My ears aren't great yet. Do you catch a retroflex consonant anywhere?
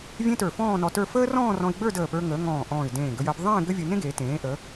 no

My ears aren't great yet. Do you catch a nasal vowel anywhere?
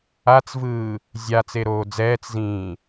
yes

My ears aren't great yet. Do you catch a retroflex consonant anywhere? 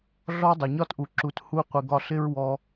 no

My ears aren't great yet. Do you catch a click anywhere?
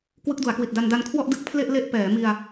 no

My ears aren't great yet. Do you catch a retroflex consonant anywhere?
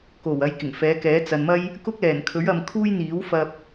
no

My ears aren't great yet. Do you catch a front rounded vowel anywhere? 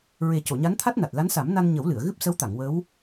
no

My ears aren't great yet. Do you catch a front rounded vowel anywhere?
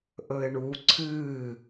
no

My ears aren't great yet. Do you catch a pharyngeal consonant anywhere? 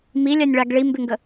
no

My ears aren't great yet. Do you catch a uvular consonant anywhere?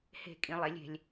no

